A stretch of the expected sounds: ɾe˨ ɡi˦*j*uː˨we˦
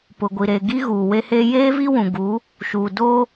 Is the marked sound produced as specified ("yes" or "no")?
no